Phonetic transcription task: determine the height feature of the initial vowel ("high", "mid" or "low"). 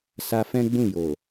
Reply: low